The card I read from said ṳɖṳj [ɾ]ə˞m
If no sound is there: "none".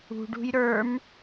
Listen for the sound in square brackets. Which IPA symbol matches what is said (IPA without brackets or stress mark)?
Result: ɾ